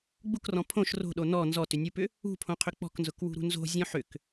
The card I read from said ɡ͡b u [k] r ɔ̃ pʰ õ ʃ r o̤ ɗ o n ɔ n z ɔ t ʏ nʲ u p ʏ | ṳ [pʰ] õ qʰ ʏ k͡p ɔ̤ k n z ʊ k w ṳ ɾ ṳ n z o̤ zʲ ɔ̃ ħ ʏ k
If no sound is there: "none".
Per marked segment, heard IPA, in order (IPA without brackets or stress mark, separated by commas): k, pʰ